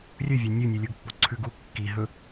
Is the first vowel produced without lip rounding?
no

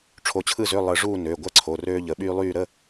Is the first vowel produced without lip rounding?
no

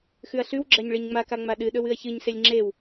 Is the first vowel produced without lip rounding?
no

